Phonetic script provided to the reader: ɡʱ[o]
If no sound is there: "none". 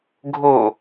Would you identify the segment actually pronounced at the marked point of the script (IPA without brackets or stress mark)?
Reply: o